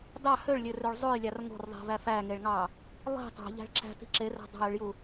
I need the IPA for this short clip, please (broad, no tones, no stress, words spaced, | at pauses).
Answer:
dɑ høɭlʲørøɭ zˤojlʲɑr ŋo̤rðˤi̤væ fæŋeɭŋɑ | lˠi̤ tˤo̤ʎæ̤ɭ ǁæ̤ti̤ ǁeræ̤ dˤɑ̤jyɭju